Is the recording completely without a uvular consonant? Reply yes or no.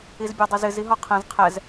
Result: no